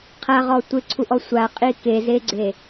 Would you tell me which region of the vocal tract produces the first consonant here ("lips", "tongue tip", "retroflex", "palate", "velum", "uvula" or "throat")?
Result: uvula